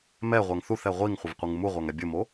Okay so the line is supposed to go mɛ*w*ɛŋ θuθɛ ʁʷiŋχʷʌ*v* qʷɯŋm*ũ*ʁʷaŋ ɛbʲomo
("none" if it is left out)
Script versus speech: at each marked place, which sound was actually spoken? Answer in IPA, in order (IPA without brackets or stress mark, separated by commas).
ʁʷ, v, u